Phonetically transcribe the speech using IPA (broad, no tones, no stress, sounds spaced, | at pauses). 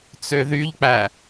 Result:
t͡s ø ð y ʎ k͡p æ